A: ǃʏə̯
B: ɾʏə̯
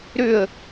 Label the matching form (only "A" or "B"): B